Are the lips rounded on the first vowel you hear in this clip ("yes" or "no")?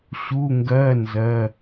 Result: yes